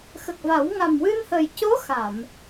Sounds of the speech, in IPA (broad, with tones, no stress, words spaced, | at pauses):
xə˨˩k̚va˨˩˦w ŋa˨˩mwɨ˧nhə˨˩j co˧˥ xa˨˩˨m